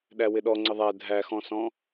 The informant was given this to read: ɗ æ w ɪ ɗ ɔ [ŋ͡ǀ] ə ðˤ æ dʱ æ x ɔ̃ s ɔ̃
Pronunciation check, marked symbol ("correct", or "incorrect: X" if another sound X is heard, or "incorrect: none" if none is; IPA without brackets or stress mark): correct